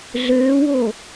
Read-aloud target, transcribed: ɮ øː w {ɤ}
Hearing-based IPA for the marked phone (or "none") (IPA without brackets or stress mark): o